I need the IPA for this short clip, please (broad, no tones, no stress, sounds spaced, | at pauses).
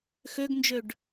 x ø ɡ n d͡ʒ ø ɖ